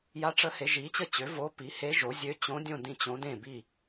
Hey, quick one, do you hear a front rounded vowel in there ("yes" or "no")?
yes